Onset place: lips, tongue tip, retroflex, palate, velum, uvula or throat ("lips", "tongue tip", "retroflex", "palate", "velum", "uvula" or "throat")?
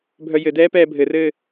lips